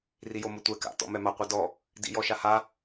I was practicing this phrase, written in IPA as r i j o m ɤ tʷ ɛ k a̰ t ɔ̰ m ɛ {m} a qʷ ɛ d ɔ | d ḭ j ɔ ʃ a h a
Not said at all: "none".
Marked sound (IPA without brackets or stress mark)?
m